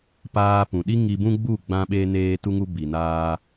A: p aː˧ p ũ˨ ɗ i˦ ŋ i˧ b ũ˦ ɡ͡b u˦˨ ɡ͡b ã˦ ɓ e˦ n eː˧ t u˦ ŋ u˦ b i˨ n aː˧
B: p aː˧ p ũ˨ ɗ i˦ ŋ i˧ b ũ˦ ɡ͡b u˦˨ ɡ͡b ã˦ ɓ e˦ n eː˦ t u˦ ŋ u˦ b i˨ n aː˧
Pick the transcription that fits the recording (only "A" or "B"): A